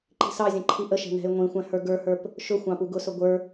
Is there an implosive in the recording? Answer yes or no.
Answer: no